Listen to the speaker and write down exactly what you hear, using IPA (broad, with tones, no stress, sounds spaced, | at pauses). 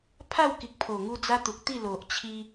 pʰ a˥˧ w k i˨ k̚ pʰ o˨˩ ŋ u˧ d͡z a˦ t̪ u˨ k̚ t̪ i˥˧ l o˨ ʔ t͡ɕʰ i˧